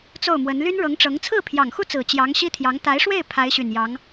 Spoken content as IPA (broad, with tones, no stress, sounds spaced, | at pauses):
t͡s o˥˩ ʊ̯ m w ə˧˥ n l y˥ n ɻ ɤ˧˥ ŋ ʈ͡ʂ ɤ˧˥ ŋ t͡sʰ ɹ̩˥˩ pʰ j ɑ˨˩ ŋ x u˥˩ t͡s ɹ̩˨˩ t͡ɕ j ɑ˧˥ ŋ ɕ i˥ t̪ʰ j ɑ˧˥ ŋ t̪ a˧˥ ɪ̯ ʂ w e˥˩ ɪ̯ pʰ a˧˥ ɪ̯ ɕ y˨˩ n j ɑ˧˥ ŋ